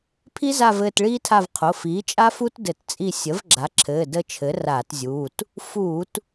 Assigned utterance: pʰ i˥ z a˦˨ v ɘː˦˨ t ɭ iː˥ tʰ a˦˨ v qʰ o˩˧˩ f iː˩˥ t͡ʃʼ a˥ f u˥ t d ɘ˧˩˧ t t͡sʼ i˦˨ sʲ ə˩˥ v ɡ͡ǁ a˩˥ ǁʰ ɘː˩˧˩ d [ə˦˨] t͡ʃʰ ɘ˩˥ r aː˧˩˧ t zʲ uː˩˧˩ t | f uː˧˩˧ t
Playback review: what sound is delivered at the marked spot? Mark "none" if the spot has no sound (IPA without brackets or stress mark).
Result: ə˦˨